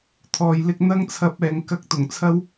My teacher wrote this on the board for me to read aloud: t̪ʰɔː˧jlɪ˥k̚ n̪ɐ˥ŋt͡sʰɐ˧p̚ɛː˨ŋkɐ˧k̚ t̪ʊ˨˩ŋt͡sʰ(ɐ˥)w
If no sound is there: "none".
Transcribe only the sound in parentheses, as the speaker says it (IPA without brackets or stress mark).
ɐ˥